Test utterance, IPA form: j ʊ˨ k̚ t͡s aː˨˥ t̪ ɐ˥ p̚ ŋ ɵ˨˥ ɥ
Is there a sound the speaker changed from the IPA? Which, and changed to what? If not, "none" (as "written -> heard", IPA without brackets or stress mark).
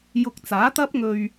ɵ˨˥ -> ɵ˧